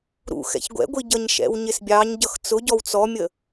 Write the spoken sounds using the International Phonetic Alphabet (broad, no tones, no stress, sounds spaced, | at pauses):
ɾ ṵ x ɛ̰ ç ɡʷ ɛ̰ ɡʷ i ɟ ʌ ɲ ʃ ɛ̰ w ɲ ɪ s bʲ ɑ ɲ ɟ ʌ x t͡s ʊ ɟ ɔ w t͡s ɔ mʲ ə